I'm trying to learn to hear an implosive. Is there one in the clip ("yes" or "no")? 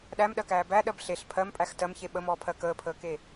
yes